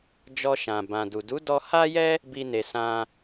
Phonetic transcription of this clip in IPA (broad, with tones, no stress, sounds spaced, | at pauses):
d͡ʒ ɔ˧ ʃ ã˨ b ã˨ d u˨ d u˨˦ d ɔ˧ h a˦ j ɛ˦ | b i˦ n e˧ s ã˦